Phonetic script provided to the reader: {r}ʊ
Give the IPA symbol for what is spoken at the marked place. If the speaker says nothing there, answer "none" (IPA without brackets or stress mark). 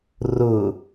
r